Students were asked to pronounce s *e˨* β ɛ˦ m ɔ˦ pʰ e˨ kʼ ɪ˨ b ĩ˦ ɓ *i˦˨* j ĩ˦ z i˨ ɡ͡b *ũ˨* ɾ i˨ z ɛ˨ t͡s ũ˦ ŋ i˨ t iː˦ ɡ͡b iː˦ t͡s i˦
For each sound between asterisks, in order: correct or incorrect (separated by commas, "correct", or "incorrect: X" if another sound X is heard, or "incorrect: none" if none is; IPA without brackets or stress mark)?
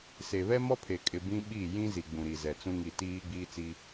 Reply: correct, correct, correct